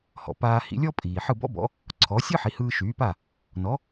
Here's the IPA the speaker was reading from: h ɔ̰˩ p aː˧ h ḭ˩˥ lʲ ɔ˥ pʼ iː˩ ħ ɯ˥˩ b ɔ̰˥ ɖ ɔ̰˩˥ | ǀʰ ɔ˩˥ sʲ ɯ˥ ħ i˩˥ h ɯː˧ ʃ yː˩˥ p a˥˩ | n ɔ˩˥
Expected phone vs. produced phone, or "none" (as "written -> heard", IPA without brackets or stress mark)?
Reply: ɖ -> b